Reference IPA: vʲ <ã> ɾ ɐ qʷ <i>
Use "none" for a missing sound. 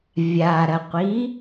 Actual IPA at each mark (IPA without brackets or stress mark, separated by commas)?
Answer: a, i